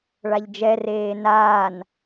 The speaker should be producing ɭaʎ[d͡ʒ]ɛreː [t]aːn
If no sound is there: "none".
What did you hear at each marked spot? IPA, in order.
d͡ʒ, n

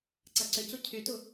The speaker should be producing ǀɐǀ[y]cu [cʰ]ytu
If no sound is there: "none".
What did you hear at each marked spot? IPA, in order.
ʏ, cʰ

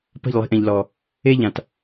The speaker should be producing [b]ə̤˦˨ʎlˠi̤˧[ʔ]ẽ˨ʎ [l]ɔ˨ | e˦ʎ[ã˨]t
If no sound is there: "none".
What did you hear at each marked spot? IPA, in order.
p, ʔ, l, ã˨

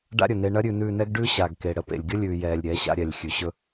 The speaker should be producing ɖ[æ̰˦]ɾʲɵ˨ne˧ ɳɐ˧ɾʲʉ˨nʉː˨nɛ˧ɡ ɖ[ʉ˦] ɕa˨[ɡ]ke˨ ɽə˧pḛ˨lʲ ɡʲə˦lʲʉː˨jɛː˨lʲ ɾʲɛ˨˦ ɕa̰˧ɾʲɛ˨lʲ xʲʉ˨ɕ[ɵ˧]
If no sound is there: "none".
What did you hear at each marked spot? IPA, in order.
a̰˦, ʉ˦, ɡ, ɵ˦

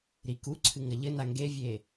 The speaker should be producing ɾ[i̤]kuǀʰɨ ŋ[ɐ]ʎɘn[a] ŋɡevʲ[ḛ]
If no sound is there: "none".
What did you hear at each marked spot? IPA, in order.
i, ɐ, a, e

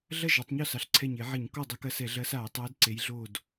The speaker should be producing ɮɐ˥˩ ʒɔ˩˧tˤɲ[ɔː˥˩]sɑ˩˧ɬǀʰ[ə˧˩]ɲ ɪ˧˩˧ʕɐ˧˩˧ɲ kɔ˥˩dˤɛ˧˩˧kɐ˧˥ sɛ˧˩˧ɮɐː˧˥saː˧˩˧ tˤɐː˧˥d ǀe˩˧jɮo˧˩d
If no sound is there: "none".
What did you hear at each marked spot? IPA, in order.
ɔ˥˩, ɛ˧˩

